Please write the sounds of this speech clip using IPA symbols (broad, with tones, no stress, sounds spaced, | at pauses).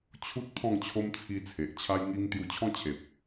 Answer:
t͡ɕʰ u˦ t̚ pʰ ɔ̃˥˧ ŋ t͡ɕʰ o˦ m t͡sʰ i˧ t͡sʰ e˨ ʔ t͡ɕʰ a˦ j ŋ i˦ ŋ t̪ j u˧ t͡ɕʰ ɔ̃˦ t͡ɕʰ e˨ p̚